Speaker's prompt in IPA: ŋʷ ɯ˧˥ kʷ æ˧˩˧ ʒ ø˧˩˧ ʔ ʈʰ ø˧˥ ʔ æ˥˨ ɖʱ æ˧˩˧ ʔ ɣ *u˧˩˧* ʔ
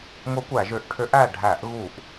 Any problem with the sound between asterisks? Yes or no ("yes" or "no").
no